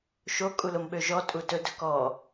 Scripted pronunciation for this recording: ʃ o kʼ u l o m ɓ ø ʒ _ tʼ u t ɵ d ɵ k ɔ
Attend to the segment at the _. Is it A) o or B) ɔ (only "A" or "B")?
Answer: B